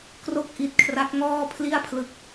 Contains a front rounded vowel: no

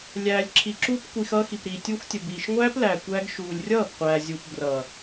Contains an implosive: no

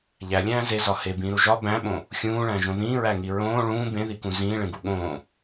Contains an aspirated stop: no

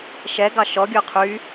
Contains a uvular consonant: yes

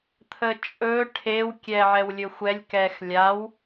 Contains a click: no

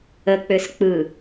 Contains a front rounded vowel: yes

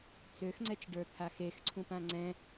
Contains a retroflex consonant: yes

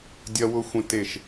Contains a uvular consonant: no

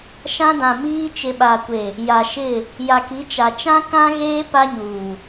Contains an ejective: no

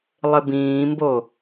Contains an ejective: no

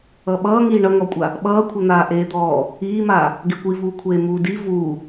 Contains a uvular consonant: no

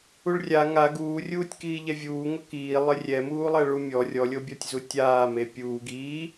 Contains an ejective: no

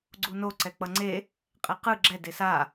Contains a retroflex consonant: no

